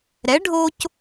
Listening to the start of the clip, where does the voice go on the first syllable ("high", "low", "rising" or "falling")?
rising